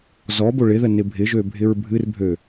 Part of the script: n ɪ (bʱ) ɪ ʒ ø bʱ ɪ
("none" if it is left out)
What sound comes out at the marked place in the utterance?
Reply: bʱ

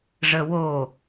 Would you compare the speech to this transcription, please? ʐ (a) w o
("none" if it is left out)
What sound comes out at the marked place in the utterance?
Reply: ə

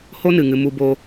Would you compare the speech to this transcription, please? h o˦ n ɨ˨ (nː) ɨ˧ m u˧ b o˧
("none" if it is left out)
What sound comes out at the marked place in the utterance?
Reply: ŋ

